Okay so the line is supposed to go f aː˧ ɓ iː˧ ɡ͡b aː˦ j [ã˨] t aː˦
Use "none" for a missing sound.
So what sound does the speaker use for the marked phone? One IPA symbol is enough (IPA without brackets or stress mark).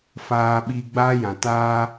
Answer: ã˨